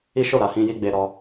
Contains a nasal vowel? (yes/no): yes